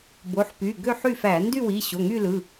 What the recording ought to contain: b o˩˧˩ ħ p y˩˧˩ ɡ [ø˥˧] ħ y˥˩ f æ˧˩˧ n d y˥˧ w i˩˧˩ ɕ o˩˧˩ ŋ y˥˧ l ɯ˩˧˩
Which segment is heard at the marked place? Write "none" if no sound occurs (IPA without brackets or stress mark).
ø˥˧